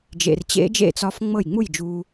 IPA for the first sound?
d͡ʒ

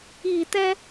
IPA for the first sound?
i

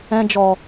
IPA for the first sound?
ɛ̃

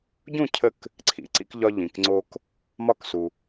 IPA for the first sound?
ɟ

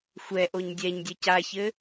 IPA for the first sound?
xʷ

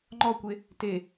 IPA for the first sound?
ŋ͡ǃ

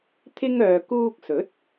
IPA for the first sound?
t̪ʰ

